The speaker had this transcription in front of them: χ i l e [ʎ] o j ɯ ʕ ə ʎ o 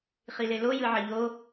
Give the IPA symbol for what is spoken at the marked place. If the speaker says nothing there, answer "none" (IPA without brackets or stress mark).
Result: l